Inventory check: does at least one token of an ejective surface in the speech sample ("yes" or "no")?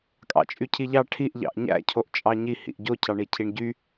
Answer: yes